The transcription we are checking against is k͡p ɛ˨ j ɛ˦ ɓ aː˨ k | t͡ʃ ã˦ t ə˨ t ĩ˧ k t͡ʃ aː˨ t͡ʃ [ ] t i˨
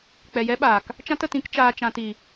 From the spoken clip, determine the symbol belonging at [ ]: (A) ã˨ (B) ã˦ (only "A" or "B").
A